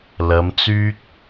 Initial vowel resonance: oral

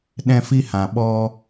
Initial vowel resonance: nasal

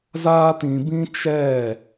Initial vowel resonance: oral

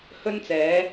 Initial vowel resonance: oral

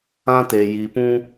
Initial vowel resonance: nasal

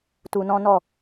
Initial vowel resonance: oral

